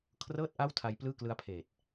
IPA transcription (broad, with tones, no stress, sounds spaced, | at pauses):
kʰ r ɤː˥˩ t̚ ʔ a˥˩ w tʰ a˧ j p l ɯː˥˩ k l ɯ˦˥ a̯ pʰ eː˨˩ t̚